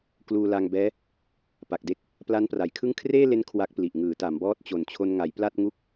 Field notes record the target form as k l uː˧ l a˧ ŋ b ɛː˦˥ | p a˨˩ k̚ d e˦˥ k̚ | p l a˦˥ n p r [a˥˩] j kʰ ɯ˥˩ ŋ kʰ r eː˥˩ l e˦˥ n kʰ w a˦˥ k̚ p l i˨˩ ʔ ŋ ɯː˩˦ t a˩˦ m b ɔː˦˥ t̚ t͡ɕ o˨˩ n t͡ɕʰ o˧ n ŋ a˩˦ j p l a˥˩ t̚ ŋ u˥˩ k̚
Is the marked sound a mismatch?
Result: yes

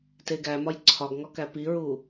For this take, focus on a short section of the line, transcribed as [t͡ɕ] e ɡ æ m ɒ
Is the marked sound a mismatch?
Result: yes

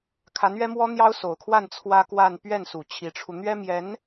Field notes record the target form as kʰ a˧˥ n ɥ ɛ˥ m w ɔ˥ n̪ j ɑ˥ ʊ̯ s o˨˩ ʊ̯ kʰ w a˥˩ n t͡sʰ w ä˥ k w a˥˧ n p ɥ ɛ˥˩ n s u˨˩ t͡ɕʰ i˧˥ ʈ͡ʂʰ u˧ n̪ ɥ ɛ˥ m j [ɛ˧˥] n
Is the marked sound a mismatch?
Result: no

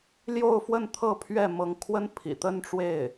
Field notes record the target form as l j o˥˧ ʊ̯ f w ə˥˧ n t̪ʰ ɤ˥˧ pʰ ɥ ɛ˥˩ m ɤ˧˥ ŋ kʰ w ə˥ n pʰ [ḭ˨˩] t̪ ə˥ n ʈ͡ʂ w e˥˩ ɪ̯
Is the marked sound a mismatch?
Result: no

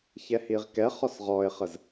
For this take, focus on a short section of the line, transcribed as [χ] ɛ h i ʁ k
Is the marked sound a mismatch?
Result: yes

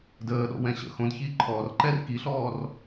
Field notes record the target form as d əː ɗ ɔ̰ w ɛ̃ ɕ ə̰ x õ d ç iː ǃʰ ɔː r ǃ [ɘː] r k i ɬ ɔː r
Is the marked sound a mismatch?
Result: yes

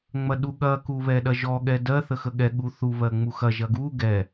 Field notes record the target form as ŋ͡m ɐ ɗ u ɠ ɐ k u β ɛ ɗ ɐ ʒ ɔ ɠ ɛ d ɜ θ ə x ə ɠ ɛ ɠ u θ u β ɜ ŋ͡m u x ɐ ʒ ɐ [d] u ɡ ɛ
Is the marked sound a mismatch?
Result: yes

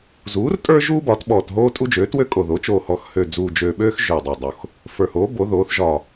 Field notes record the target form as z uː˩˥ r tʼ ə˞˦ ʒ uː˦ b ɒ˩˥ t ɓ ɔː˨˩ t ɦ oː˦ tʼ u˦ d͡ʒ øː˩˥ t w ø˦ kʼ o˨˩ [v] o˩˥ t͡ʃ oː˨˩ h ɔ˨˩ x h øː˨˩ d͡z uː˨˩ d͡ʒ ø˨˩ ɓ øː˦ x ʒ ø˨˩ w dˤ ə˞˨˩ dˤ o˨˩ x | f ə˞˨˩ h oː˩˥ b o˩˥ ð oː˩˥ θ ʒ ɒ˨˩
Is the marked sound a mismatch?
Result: yes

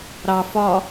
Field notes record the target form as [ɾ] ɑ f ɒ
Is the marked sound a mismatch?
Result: no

